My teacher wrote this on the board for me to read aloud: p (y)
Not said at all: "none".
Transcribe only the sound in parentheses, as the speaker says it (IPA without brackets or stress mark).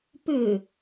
ʏ